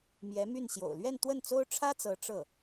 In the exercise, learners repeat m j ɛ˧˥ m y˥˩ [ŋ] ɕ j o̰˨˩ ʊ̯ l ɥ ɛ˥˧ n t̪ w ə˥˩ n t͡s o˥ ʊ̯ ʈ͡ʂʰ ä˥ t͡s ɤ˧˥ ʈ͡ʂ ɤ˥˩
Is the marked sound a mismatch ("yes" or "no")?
yes